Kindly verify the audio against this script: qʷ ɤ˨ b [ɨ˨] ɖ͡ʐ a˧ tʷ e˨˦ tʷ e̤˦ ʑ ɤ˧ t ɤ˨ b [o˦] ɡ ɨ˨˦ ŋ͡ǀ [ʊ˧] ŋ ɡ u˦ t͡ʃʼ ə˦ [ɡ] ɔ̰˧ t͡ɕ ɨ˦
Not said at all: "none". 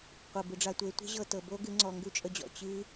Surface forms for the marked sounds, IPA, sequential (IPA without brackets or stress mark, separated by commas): ɨ˨, o˦, ɔ˧, d͡ʑ